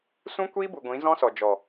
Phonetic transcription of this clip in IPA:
s ũ˦ kʷ iː˦ b u˨ ɡʷ ĩ˨˦ z ɔ̃˦ s ɔ˨ d͡ʒ ɔ˨

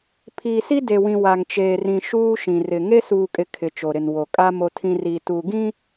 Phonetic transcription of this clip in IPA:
pʰ iː˨ s i˦ d e˨ w ĩ˨ w a˨ ŋ t͡ʃ eː˨ r ĩ˨ ʃ uː˦ ʃ ĩ˨ r ɪ˨ ŋ e˦ s uː˨ kʼ ɪ˨ kʰ ɪ˨ t͡ʃ o˨ ɾ ɪ˨ n w o˨ kʼ a˦ m o˦ tʰ ĩ˦ r i˨ t u˨ ɡ ĩ˦

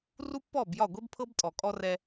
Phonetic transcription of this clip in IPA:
r u˦ pː ɔ˦˨ b j ɒ˦˨ ɡʷ e˦ b pʰ ɤ˦ b tʼ ɔ˨ kʼ ɔ˦ r ɛ˦

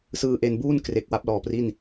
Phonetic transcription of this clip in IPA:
s ɯː˧ ʔ e˧ n b uː˥˩ n k r e˨˩ k̚ w a˦˥ p̚ l ɔː˩˦ p r i˥˩ n

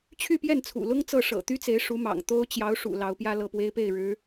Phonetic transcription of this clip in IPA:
t͡ɕʰ y˥˧ p j ɛ˥˩ n t͡sʰ ṵ˨˩ l ʊ˥ ŋ t͡s ɤ˥˩ ʂ ɤ̰˨˩ t̪ y˥ t͡s e˧˥ ɪ̯ ʂ u˧˥ m ɑ̰˨˩ ŋ t̪ o˥ ʊ̯ t͡ɕ j ɑ˧˥ ʊ̯ ʂ ṵ˨˩ l ɑ˧˥ ʊ̯ p j ä˥ l ɤ˥˩ p w e˥ ɪ̯ p e˥˩ ɪ̯ ɻ ɻ̩˧˥

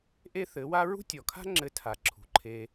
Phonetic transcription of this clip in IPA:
ʔ e˦ θ ɘ˨˦ w a˦ ɹ ṳ˦ tʲ ɔ˨ kʰ a̤˦ ŋ͡ǁ ɘ˧ tʰ a˨ ǁʰ ṳ˨ ǃʰ e˧

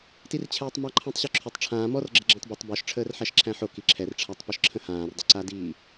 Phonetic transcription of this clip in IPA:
t i r t͡ɕʰ ɛː tˤ m a ǃʰ æ̃ tˤ ɕ ɔ ǁʰ ʏ tˤ ʈ͡ʂʰ ãː m ɔ r ɡ͡ǁ ə ɡ͡ǁ æ̃ tˤ b o tˤ b ɔ ʃ ʈ͡ʂʰ əː r ħ æ ʃ ǁʰ æ̃ ħ o k i ǁʰ ɛ r ʈ͡ʂʰ a tˤ p ʏ ʃ ǁʰ ə̃ h ãː r dˤ ə ǀ a d iː

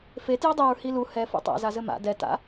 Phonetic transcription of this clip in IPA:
f e t j ɵ dˤ e ɹ h i l u h ɛ f ṵ tˤ a̰ z a z ɘ m a̰ d ɛ t a̰

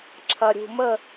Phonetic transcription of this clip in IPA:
ǁʰ ɐ˧ ɾʲ ṳ˧ m ə˥˧

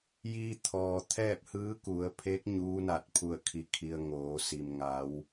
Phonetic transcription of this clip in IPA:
j iː˧ t̪ʰ ɔː˩ t̪ʰ ɛː˥˨ p̚ h ɯː˧˥ k u˩˧ ə̯ pʰ e˧˥ k̚ ɲ uː˧˥ n a˧˩ t̚ pʰ u˧˩ ə̯ kʰ i˩ kʰ i˩ ə̯ ŋ oː˩˧ s i˩ m ŋ a˩˧ w

